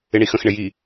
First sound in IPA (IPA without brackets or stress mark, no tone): ɪ